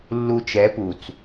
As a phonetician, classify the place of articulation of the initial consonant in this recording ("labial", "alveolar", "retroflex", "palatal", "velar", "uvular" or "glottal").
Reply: alveolar